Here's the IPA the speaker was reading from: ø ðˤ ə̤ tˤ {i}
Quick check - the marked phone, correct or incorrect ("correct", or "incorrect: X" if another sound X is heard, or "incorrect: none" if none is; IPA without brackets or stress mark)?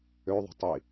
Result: correct